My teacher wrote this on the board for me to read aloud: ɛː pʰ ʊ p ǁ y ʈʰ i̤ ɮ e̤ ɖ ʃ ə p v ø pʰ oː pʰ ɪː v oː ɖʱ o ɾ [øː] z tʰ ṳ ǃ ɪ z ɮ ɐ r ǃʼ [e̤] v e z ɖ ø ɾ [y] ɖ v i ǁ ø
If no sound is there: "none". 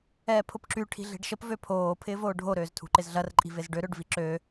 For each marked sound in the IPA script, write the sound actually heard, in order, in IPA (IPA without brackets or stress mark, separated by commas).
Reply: øː, i̤, ø